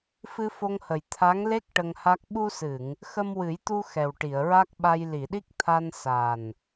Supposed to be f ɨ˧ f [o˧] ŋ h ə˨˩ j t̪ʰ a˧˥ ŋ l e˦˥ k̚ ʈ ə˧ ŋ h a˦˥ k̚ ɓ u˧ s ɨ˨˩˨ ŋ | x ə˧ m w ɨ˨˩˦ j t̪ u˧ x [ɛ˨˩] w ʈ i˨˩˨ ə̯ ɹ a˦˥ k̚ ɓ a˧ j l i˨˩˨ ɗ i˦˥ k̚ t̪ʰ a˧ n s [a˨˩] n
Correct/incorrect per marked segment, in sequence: correct, correct, correct

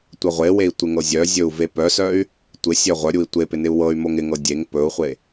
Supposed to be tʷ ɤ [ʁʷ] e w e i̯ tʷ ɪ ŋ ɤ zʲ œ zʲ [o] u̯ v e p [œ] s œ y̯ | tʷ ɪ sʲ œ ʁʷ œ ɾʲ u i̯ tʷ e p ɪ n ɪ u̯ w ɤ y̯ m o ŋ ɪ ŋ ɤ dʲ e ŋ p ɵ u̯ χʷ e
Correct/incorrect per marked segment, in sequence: correct, incorrect: ɵ, correct

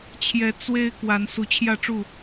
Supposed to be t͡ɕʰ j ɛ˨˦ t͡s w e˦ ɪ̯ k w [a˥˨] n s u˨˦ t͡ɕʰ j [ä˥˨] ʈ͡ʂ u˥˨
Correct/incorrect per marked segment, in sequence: incorrect: a˨˦, correct

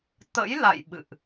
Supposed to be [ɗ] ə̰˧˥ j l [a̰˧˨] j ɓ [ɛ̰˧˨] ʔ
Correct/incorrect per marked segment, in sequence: incorrect: t̪, correct, incorrect: ɨ̰˧˨

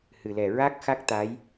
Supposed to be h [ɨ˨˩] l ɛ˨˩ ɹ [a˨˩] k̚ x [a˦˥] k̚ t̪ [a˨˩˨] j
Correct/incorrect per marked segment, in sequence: correct, incorrect: a˦˥, correct, incorrect: a˧˥

